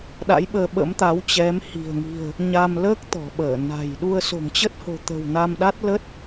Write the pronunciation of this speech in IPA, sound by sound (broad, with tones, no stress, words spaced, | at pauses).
ɗa̰˧˥jɓəː˧ɓə̰˧˥mt̪a˨˦w t͡ɕɛ˨˦mhi̤˨˩ə̯ŋi̤˨˩ə̯ | ɲaː˧mləː˦˥k̚ t̪ɔ̤˨˩ɓəː˧˩na̤˨˩j ɗu˧ə̯ so̤˨˩ŋt͡ɕə˦˥t̚ho̤˨˩ t̪ə̤˨˩w na˧mɗa˦˥t̚lə˦˥t̚